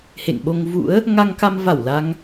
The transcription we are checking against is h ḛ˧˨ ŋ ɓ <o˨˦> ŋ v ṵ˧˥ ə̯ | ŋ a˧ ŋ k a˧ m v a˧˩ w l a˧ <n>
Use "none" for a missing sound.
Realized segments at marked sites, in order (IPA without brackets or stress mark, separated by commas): o˧, ŋ